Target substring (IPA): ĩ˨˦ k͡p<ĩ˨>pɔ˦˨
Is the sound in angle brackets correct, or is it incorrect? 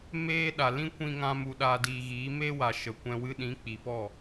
incorrect